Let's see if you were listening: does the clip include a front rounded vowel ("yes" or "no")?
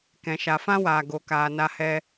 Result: no